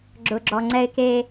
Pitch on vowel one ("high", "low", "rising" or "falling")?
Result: low